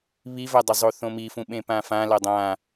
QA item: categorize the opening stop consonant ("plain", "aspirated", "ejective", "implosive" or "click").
plain